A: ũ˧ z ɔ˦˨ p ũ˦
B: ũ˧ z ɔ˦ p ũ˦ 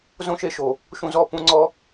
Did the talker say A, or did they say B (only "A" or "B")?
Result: A